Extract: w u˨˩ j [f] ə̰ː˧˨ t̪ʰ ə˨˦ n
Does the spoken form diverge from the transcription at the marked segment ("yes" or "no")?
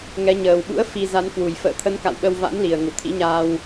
no